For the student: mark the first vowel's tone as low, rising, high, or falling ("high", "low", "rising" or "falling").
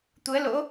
rising